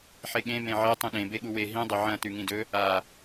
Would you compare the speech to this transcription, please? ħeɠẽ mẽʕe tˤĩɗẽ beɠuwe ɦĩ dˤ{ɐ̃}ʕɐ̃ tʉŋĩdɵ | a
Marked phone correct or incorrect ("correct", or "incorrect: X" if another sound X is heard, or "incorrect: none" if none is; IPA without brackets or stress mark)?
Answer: incorrect: ɐ